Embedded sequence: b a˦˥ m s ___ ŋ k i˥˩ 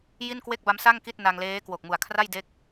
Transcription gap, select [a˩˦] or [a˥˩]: a˥˩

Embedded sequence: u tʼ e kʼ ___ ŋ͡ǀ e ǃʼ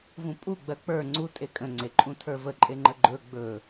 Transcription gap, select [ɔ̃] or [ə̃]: ə̃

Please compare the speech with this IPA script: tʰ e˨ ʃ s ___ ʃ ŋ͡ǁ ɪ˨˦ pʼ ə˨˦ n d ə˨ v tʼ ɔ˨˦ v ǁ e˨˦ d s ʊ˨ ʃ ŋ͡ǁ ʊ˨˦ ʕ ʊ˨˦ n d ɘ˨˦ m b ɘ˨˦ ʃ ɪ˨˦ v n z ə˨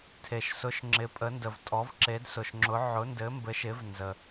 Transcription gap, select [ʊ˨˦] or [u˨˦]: ʊ˨˦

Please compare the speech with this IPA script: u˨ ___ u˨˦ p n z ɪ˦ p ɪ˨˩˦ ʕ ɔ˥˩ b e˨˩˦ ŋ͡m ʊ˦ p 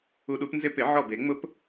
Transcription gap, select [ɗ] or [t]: ɗ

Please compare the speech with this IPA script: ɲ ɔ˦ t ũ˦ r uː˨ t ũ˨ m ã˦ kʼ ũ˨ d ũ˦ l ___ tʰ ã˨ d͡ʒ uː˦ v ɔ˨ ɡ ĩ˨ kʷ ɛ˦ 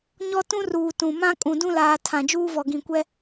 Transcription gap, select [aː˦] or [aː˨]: aː˨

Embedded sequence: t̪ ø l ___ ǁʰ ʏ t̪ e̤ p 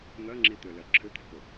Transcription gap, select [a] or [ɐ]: ɐ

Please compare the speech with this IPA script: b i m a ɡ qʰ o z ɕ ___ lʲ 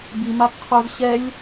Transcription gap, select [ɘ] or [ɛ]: ɛ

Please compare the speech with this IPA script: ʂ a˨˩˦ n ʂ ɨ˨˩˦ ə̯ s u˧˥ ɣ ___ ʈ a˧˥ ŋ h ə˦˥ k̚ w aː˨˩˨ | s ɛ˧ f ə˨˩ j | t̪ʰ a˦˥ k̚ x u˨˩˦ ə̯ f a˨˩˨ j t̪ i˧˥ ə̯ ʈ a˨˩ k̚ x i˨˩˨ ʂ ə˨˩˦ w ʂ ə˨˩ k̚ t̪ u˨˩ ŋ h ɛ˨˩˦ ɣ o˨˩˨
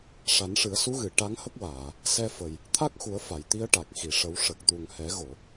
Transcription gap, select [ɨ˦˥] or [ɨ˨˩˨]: ɨ˨˩˨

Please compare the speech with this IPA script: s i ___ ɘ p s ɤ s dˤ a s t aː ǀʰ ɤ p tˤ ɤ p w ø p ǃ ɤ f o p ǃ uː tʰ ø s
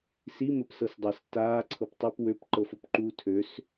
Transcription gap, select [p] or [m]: m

